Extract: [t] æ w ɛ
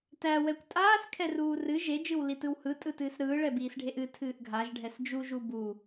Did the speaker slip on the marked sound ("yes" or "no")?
no